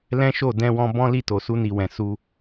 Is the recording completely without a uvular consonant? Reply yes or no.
yes